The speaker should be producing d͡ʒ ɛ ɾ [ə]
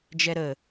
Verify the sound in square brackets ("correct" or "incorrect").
correct